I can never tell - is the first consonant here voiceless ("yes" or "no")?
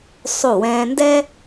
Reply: yes